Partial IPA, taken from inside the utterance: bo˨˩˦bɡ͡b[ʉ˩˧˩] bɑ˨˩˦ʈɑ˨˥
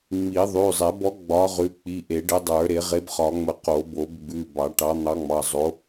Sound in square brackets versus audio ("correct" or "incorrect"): correct